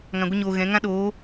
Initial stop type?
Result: plain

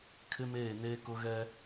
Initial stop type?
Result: aspirated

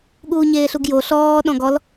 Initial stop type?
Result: implosive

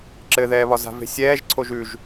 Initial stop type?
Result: click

